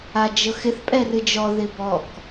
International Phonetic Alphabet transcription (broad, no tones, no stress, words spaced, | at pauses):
ad͡ʒɤxɪθ pʼɛrɨd͡ʒɔ ðɪbɔk